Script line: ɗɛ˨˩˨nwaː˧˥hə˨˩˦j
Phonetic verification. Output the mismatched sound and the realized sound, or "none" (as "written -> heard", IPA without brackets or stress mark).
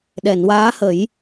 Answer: none